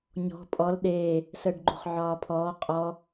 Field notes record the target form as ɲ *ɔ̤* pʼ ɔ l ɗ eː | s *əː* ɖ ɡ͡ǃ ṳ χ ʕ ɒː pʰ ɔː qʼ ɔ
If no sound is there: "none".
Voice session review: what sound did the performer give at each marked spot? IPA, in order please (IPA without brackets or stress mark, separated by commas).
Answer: ɔ̤, əː